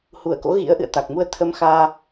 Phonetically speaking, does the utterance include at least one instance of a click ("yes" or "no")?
no